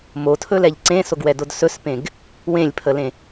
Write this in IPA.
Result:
m o tʰ ɵ l ɛ ʎ ǀ ẽ s o ɡ w ɛ d o d s ɵ s p ẽ ɡ | w ẽ lʲ pʰ ə l ẽ

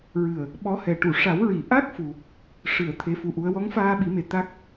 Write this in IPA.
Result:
ɹ ɨ˨˩ ə̯ | ɓ ɔ˧˥ h ɛ˨˩ ʈ u˨˩˨ ʂ a˨˩˦ w ɹ i˨˩˨ ʔ a˦˥ k̚ f u˨˩ | ʂ ɨ˨˩˨ ə̯ t̪ʰ e˧˥ f u˧ ʔ u˧˥ ə̯ w ɔ˧˥ ŋ f aː˧ ɓ i˨˩˦ m e˨˩ t̪ a˦˥ k̚

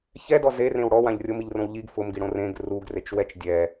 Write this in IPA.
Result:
ç ɛ d ɔ z e r ẽ w ɽ ɔ w ã ʎ rʲ o m i ʎ r õ w ʎ i ɡ f ʊ m ɡ i ɽ õ r ẽ ɡ r u ɡ r e t͡ʃ w ɛ t͡ʃ dʲ ɛ

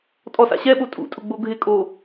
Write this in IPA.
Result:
tʼ ɔ s a̰ ɕ ɛ ɓ o tʼ ṵ tʼ ʊ ɡ͡b o ɡʱ ɪ kʼ o

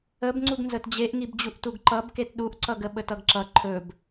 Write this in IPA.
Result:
ə b ŋ͡ǀ u ɡ n z ə t d͡ʑ e ʔ ŋ i b d͡ʑ u ʔ t u ɡ ǃ ʌ b k e t ɗ u ʔ ǀ ʌ ɡ ə ɓ ə t ʌ ɡ ǁ ʌ ǃʰ ɵ b

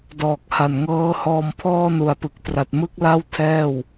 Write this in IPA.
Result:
d ɔː˨˩ k̚ h a˨˩ n ŋ ɤː˦˥ h ɔː˧ m pʰ ɔː˧ n u˩˦ a̯ p ɯ˨˩ k̚ t r a˨˩ t̚ m ɯ˥˩ k̚ l a˥˩ w tʰ ɛː˥˩ w

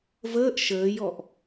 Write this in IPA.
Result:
v əː ʔ ʃ əː j ɔ ʔ

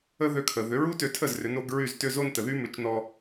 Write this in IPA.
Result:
ə˥ ð ø˧ kʰ ə˩ ð ʏ˩˥ ɹ u˥ t ø˧ tʰ ə˥˩ z r ʏ˩˥ n o˩˥ ɡ ɹ y˥˩ z t ʏ˥ z o˥ n t ə˩ ð y˥ m ʏ˩˥ t͡ʃ n ɔ˧

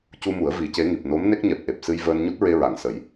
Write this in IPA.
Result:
c u˧ m u˨˩˦ ə̯ v i˨˩˦ c e˧˥ ŋ i˨˩ p̚ n o˧˥ m n e˦˥ k̚ ɲ ɛ˨˩ p̚ ʔ e˨˩ p̚ s ɨ˧ j v əː˧ n ɲ u˦˥ t̚ ɹ e˧ ɹ a˨˩˨ ŋ s ə˨˩˦ j

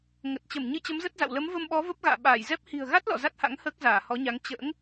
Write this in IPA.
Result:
ŋ ə˨˩ t̚ t͡ɕ ə˧˩ m ɲ ɨ˧ t͡ɕ ə˨˦ m z ə˦˥ t̚ z a̰˧˨ w l ə˨˦ m v ə˧ m ɓ ɔ˨˦ v ə˦˥ p̚ ɣ a̰ː˧˨ ɓ aː˧˩ j z ɛ˦˥ p̚ h i̤˨˩ ə̯ ɣ a˦˥ t̚ l ɔ̰˧˨ z a˦˥ t̚ h a̰˧˥ ŋ h əː˦˥ k̚ z aː˧˩ h ɔ˨˦ ɲ a˨˦ ŋ t͡ɕ ə̰ː˧˥ ŋ

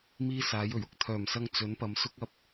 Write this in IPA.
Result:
m iː˥ s aː˨˥ j ɵ˨˩ ɥ ʊ˧ k̚ t̪ʰ œː˨˩ m s ɐ˧ ŋ t͡s ɵ˨˥ n p ɐ˨˧ m s ʊ˥ k̚ ɐ˧ p̚

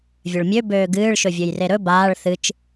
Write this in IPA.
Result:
vʲ ɵ ɭ mʲ ø b øː ɡ ɨː ɭ ʃ ɵ vʲ ø j r e ɾ ɵ b aː ɭ θ ɨ t͡ʃ

